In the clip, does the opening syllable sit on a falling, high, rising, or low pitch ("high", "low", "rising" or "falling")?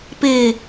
low